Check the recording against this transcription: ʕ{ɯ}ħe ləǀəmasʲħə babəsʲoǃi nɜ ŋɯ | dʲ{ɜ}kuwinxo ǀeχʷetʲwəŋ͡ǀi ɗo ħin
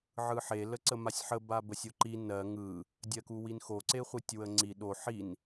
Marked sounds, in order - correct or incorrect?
correct, correct

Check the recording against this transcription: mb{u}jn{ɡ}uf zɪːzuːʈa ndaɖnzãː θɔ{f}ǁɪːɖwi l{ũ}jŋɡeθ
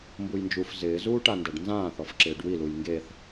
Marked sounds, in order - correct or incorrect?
correct, incorrect: d͡ʒ, correct, incorrect: u

